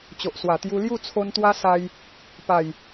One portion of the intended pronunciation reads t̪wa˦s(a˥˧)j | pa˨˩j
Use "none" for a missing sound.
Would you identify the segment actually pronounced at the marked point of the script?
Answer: a˧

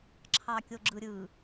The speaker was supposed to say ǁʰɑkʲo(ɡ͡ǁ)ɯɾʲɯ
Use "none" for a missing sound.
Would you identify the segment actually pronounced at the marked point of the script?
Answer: ɡ͡ǁ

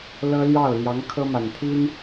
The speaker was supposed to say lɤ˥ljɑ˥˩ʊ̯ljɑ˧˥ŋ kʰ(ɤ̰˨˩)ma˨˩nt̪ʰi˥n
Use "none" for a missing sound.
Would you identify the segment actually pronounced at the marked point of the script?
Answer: ɤ˥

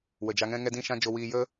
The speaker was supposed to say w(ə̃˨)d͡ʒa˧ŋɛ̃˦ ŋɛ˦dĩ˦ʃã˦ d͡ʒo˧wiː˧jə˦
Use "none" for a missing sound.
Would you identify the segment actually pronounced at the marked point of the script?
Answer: ə˨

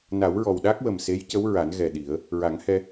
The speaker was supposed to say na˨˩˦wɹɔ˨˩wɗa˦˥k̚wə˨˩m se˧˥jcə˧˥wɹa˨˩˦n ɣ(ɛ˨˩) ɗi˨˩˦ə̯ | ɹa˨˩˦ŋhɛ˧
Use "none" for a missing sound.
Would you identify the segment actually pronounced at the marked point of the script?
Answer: ɛ˨˩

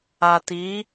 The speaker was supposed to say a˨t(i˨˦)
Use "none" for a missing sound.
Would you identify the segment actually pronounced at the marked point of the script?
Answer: i˨˦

